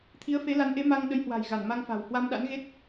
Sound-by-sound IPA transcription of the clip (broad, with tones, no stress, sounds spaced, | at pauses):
t̪ʰ i˨˦ ə̯ f e˨˦ l a˨˦ n ʔ e˨˦ m a˧ ŋ ɗ ə˨˦ j h w a̤˨˩ j ɣ a˧˩ n m a˧ ŋ f a̤˨˩ w h w a˧ m ɗ a̰˧˥ n ɣ e˦˥ t̚